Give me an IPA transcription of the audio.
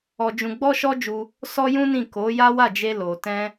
ɔ˧ d͡ʒ ũ˧ ɡ͡b ɔ˦ ʃ ɔ˦ d͡ʒ u˧ | s ɔ˦ j ũ˦ n ĩ˦˨ k o˨˦ j a˦ w a˦˨ d͡ʒ e˧ l o˨ t ɛ̃˧

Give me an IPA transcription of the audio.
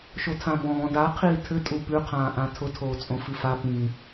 ʃ o tʰ ã b ɔ̃ː d a qʰ iː tʰ ɘ tʼ u p ʉ qʰ ãː ʔ ã tʰ ʊ tʰ oː t͡sʼ õ f i f a p ĩ

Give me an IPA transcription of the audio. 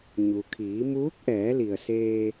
ɲ u˩ kʰ iː˩˧ m uː˧˥ k̚ ʔ ɛː˩˧ l i˩ ə̯ s eː˧

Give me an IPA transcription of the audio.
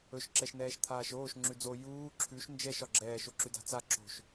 ɵ ʃ ǁ ɛ ʃ n ɛː ʃ t̪ʰ aː ʃ oː ʃ ŋ͡ǁ ʉ d͡z o j uː ǁʰ ʉ ʃ n d͡ʒ ɛ ʃ ɒ ɡ͡ǁ ɛː ʃ o ǁ ʉ d a̤ t͡s a ǁ o̤ ʃ

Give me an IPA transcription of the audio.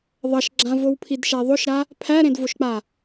ðˤ ʌ ʃ ɡ͡ǁ ã v o w pʰ i d ʃ ɛ ðˤ o ʃ ɾ a | pʰ æ ɾ ẽ d v o ʃ k͡p a

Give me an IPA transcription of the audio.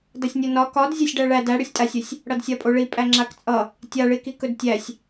d ʌ sʲ nʲ o n ɒ k ɒ d zʲ a sʲ ɖ æ ɭ æ d æ ɽ ɵ sʲ tʼ a sʲ ɵ sʲ | ɽ ʌ d sʲ a pʼ o ɭ i pʼ æ ŋ͡ǁ a k t͡sʼ ʌ | tʲ a ɭ i k i k ɵ d tʲ æ sʲ

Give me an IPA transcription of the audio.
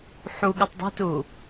ħ u ɠ ɯ tˤ dˤ ṳ t u

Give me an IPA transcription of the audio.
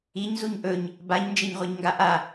i ɲ z u ɲ ʔ ɵ ɲ | b a ɲ n d͡ʒ e ɲ ʁʷ a ɲ ŋ ɡ a ʔ a

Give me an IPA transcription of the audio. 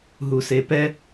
ɦ u s e p ɛ

